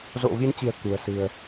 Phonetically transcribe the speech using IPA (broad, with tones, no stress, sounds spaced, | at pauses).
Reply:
z o̰˧˨ v i˨˦ n t͡ɕ i̤˨˩ ə̯ k ṳ˨˩ ə̯ s ɨ̤˨˩ ə̯